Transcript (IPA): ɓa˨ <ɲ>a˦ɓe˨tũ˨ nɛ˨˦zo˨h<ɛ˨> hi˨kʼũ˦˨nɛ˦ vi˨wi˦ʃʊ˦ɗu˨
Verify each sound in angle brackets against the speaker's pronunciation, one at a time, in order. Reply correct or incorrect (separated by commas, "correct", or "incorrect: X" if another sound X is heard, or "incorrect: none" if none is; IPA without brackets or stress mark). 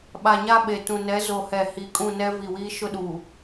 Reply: correct, correct